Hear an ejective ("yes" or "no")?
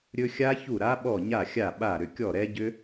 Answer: no